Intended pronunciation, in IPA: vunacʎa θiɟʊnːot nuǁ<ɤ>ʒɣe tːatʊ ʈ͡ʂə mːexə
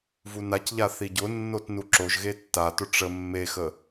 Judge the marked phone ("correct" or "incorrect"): incorrect